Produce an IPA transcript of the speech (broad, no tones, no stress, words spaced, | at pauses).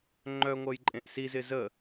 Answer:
ŋ͡ǃœ ŋʷɐjǃʼẽʔsizɪ zə